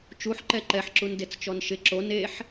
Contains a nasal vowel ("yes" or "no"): no